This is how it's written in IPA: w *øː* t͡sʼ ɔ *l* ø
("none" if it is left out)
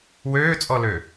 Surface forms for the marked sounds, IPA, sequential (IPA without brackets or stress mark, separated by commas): øː, l